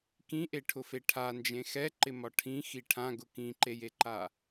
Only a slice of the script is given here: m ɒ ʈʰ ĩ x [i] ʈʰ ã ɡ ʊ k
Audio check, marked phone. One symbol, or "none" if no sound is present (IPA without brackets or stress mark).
i